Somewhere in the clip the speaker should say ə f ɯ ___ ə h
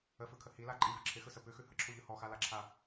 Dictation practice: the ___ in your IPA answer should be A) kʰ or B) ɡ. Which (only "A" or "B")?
A